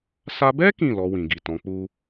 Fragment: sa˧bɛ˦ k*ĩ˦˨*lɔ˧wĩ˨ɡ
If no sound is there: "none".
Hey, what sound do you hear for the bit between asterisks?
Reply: ĩ˦˨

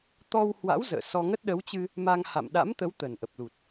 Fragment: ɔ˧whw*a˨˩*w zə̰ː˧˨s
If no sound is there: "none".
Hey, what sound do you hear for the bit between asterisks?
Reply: a̰˧˥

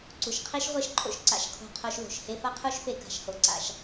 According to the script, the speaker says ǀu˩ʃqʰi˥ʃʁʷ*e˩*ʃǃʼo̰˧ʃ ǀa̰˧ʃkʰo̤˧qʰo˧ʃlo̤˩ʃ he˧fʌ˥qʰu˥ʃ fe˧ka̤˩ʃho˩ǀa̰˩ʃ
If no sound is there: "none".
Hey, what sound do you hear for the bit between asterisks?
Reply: e˥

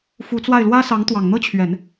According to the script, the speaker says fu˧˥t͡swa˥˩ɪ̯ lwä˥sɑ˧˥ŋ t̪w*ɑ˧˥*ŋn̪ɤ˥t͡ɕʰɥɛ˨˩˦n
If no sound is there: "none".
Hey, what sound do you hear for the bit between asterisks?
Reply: ɑ˨˩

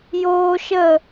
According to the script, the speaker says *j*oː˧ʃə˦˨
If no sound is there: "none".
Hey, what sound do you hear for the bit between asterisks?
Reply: j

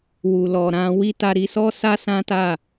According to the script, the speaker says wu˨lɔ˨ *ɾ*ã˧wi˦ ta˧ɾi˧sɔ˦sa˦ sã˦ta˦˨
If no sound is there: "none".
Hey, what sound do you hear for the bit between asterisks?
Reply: ɾ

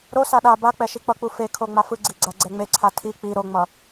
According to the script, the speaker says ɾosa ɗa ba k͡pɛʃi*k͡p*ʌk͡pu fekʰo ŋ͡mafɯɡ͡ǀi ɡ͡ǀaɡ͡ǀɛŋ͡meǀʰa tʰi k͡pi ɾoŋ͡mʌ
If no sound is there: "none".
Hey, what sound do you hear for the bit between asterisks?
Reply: k͡p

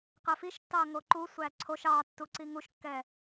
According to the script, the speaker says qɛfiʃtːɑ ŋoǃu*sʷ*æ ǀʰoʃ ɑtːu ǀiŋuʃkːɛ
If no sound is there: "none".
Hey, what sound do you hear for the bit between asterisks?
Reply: sʷ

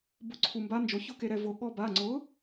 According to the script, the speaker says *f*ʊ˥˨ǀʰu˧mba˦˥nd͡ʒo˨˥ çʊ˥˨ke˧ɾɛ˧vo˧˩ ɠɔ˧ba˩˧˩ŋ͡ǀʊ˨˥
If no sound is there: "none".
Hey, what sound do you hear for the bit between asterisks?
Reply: b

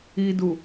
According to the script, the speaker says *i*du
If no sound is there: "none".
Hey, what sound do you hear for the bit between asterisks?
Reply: i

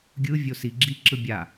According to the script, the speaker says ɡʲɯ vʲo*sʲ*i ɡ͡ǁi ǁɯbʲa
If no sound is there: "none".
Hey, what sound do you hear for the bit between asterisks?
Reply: s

